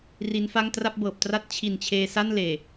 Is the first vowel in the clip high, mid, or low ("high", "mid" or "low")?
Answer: high